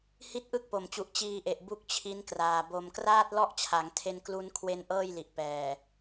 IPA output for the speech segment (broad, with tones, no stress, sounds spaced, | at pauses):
h i˥˩ t̚ ʔ ɯ˥˩ k̚ p o˨˩ m t͡ɕ u˨˩ ʔ t͡ɕ iː˧ ʔ e˨˩ ʔ b u˥˩ k̚ t͡ɕʰ i˦˥ n k r aː˨˩ b o˨˩ m k r aː˥˩ t̚ l ɔ˥˩ ʔ t͡ɕʰ a˩˦ ŋ tʰ e˧ n k l u˧ n kʰ w e˧ n ʔ ɤː˥˩ j l i˨˩ ʔ p ɛː˨˩